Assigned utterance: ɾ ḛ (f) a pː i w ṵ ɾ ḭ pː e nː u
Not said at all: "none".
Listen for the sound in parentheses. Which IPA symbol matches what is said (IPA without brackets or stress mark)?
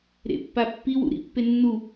pː